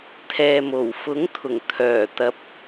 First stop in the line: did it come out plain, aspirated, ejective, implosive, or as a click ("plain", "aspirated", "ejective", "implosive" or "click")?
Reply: aspirated